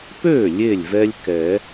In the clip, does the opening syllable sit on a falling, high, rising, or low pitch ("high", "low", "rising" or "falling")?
falling